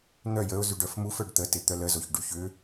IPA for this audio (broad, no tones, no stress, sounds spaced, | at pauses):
n̪ œ j ə ʊ̯ z y ɖ œ f m u f œ ɖ t̪ ə t ɪ t̪ œ l ə z o ç ɖ y ç ʏ